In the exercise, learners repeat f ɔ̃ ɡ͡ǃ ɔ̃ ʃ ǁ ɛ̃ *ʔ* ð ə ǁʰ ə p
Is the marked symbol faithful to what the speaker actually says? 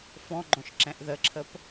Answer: yes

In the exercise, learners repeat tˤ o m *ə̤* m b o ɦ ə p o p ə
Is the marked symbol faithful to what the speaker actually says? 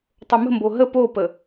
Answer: yes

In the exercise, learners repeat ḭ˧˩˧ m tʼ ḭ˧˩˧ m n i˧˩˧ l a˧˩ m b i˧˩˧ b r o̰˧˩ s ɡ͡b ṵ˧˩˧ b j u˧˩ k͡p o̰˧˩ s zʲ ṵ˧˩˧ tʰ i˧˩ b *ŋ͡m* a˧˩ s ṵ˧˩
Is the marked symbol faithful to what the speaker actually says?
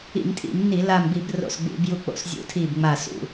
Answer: yes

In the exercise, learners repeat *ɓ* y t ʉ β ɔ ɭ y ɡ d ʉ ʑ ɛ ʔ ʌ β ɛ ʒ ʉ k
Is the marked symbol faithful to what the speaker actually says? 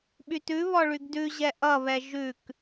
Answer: yes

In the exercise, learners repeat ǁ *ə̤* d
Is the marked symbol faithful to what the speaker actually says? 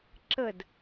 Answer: no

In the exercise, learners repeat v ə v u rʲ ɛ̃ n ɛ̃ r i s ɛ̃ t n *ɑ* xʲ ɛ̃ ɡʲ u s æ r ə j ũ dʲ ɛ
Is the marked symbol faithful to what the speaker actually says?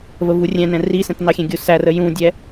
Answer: yes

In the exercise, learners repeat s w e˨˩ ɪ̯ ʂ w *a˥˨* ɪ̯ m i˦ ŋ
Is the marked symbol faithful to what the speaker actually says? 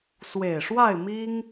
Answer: yes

